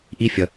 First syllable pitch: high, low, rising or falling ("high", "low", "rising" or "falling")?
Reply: high